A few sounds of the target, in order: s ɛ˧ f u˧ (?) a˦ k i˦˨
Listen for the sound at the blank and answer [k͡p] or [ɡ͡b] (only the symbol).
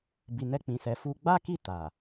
ɡ͡b